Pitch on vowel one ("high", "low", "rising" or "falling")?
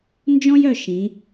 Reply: high